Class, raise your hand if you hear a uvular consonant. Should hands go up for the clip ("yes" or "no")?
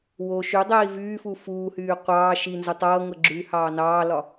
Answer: yes